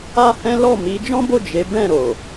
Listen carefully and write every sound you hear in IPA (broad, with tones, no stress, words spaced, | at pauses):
a˦hɛ̃˦ lɔ˦˨ mi˨˦ d͡ʒɔ̃˦bo˦˨ d͡ʒe˨˦ bɛ̃˦˨ɾo˨